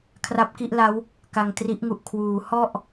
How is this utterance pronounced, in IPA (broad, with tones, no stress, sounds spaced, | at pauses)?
kʰ r a˦˥ p̚ k i˥˩ ʔ l a˦˥ w | k a˧ ŋ t r i˦˥ ʔ ŋ u˨˩ ʔ kʰ w uː˩˦ h ɔ˥˩ ʔ